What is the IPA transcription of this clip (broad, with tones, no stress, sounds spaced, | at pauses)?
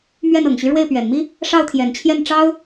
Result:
m ɥ ɛ˥˩ n ɤ˨˩ ŋ ɕ y˦ ɻ w e˥˩ ɪ̯ p ɥ ɛ˨˩ n m i˥ | ʂ ɑ˥˩ ʊ̯ t̪ʰ j ɛ˨˩ n t͡ɕʰ j ɛ˥˩ n ʈ͡ʂ ɑ˥ ʊ̯